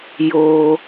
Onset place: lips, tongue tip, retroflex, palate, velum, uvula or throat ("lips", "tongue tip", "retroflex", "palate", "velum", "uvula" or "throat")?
palate